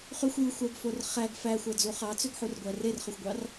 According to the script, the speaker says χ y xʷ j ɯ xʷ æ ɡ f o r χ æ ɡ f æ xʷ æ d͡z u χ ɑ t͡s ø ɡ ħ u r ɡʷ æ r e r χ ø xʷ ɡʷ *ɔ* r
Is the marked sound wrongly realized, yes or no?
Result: yes